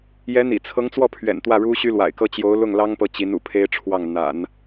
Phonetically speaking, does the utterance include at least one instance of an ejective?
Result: no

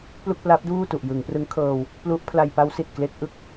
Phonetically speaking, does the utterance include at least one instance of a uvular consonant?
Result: no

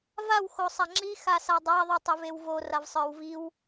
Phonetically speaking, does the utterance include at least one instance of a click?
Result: yes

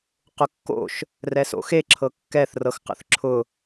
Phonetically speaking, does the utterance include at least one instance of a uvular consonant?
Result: yes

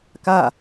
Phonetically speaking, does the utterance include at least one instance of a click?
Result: no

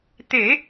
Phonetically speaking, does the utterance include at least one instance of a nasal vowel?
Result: no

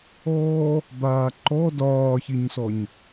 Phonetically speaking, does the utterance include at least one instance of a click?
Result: yes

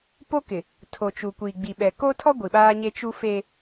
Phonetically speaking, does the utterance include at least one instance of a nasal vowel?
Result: no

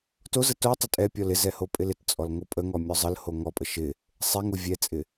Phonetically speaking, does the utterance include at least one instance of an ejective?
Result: yes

